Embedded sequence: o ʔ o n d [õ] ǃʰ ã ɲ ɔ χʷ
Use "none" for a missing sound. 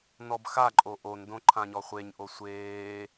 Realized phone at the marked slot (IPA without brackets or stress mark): õ